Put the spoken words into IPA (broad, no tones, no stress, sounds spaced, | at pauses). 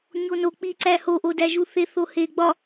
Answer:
ɲ o n o k͡p i ǀ æ h o ʔ o d æ ʒ u θ e θ o h e ɡ͡b ɒ